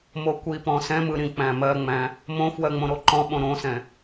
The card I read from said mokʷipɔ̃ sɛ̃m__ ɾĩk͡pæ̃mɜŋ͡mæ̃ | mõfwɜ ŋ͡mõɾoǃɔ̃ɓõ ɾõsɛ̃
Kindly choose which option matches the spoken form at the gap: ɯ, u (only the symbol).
ɯ